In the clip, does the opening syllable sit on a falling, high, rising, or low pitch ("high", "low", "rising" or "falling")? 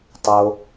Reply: low